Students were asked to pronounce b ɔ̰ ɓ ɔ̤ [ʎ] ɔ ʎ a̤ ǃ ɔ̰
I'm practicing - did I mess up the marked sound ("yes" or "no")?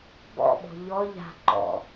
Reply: no